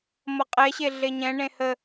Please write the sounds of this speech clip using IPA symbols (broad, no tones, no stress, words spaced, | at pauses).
mʌqʼɛɕe ɮeɲɛ̃ɳẽ hə